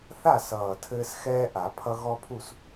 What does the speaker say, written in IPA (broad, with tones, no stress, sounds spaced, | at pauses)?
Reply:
θ a˥˨ s ʌː˨˩ tʰ ɘː˦ s x ɛː˦ ʔ a˨˩˦ pʰ ʌ˦ ɣ ɔ˦ pʰ u˥˨ s